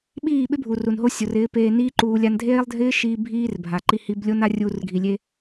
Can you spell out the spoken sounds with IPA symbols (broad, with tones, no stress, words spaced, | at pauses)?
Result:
ɓiː˦˨ɓɪ˦bʱu˨ ru˨nɦo˦sʲo˨rɪː˨˦ peː˧niː˦ǃuː˧ lʲa˧ndʱeː˦lˠdʱɪː˦ʃiː˧ bʱiː˦rbʱa˨ ǃi˧hi˧b lʲo˦na˦ rʲuː˧rɡʱi˨ lʲe˧